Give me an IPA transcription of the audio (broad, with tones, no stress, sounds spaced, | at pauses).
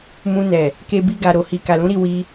m ũ˧ n ɛ˨ | k e˧ b i˧ ɡ a˨ ɾ o˨ h i˨ k a˨ l ũ˨˦ ɾ i˦˨ w i˧